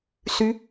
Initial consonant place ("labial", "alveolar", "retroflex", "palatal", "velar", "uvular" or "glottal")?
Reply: alveolar